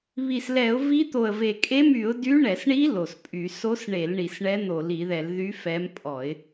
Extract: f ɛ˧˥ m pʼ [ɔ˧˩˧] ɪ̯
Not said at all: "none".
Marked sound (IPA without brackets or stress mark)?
ɔ˧˩˧